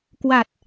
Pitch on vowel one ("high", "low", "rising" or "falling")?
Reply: low